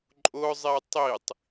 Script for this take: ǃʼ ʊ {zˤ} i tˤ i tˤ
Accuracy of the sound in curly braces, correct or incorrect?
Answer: correct